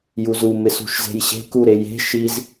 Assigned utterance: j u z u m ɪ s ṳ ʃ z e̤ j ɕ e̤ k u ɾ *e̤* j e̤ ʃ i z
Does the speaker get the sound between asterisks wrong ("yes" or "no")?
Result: yes